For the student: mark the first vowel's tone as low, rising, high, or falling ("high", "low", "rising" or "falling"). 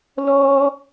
high